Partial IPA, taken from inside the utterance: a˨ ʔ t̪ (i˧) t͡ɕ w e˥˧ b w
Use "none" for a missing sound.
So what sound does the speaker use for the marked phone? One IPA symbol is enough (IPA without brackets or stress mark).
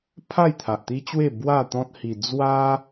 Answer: i˦